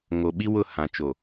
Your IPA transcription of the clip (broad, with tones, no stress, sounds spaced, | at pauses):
ŋ o˨ ɓ i˦ w ʊ˦˨ h ã˨ t͡ʃ o˨